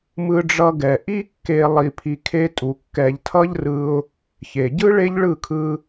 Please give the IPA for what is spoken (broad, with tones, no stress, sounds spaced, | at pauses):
m ɯ˧ ɖ͡ʐ ʌ˧ ɡ ɛ˨ ʔ i˦ kː e˧ lˠ i˧ pʰ i˧ kʰ e˦ tʼ u˧ kː ɛ˧ ʎ tʰ ʌ˦ ʎ r ɯ˧ ʊ̯ | ç e˨ ɟ ɯ˦ ɭ e˦ ʎ ɭ ɯ˦˨ kʰ ɯ˧